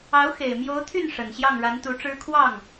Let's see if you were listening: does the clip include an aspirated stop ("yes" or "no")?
yes